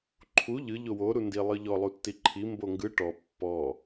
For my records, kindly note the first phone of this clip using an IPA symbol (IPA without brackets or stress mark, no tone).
ǃʰ